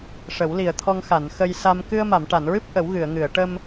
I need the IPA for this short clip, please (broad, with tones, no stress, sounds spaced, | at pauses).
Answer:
ʂ ə˨˩˦ w l i˨˩ ə̯ t̪ʰ ɔ˧ ŋ x a˨˩˨ n x ə˧ j s a˧ m k ɨ˧ ə̯ m a˨˩˨ m ʈ a˨˩˨ n ɹ ɨ˦˥ p̚ ʔ ə˨˩˦ w ɣ ɨ˨˩˨ ə̯ ŋ ɨ˨˩˨ ə̯ ʈ ə˧ m